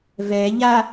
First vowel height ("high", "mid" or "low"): mid